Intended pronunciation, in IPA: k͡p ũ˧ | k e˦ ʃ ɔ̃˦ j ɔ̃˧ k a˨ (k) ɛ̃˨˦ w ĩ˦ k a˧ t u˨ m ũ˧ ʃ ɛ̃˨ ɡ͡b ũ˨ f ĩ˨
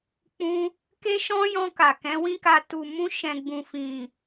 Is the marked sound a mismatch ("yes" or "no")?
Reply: no